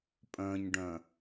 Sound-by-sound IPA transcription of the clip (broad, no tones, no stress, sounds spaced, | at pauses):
pʼ œ̃ ɲ ɖ œ̃